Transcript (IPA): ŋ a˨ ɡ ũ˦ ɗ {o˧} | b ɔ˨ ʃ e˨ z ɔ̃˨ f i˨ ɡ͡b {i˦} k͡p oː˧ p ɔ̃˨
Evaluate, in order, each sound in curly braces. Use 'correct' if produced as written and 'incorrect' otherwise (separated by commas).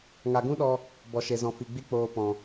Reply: incorrect, correct